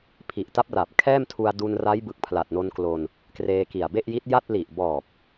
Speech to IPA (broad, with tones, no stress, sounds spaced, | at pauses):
pʰ i˨˩ ʔ t a˦˥ p̚ r a˨˩ p̚ kʰ ɛː˥˩ m tʰ u˧ a̯ d u˧ n r a˦˥ j b ɯ˨˩ k̚ pʰ l a˨˩ t̚ n o˧ n k l o˧ n | k r eː˧ k i˨˩ a̯ b e˥˩ ʔ j i˦˥ t̚ j a˥˩ t̚ l i˨˩ ʔ b ɔː˨˩ p̚